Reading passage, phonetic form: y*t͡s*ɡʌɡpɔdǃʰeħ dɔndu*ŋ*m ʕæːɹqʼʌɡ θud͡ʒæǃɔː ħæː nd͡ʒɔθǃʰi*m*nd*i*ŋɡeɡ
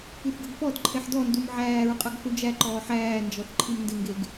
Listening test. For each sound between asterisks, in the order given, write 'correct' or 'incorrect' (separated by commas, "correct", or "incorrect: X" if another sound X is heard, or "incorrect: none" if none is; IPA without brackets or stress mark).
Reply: incorrect: θ, incorrect: none, correct, incorrect: ɪ